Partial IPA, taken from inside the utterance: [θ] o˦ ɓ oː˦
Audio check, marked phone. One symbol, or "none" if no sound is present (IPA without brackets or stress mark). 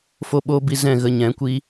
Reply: f